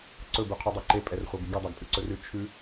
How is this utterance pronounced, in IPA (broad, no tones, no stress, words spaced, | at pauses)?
ǀɵb ʉqʰudˤɛǃe pʼɛrχʷabiɡu dˤaɡpʼʉǀɵrʉ t͡ʃʰʉ